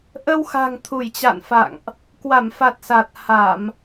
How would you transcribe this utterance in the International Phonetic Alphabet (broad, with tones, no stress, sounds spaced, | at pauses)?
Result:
ʔ ə˧ w x a̤˨˩ ŋ t̪ʰ u˧˩ j t͡ɕ a̰˧˨ n f a̰˧˨ ŋ ʔ | k w a˧˩ m f a˨˩ t̚ s a˨˩ t̚ h a˧˩˨ m